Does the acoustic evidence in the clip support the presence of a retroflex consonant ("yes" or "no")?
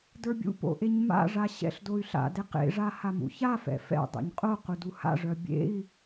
yes